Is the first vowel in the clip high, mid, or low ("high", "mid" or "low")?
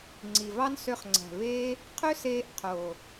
high